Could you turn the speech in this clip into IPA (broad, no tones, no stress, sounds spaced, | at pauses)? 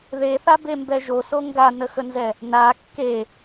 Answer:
ð e θ a b e m b ɛ ʒ o s o ŋ ɡ a n ə x ə n z ɛ | n a kː e